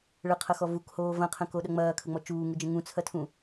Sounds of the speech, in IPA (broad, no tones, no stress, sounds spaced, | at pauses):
ɭ ə qʰ ɐ x ɔ v u k h oː v ɐ̃ qʰ ə̃ k o ɗ ɐ ŋ͡m ɐː kʰ ə ŋ͡m ɔ t͡ʃ uː ŋ u d͡ʒ ə̃ ŋ ũ t͡sʰ ɐ tʰ ũ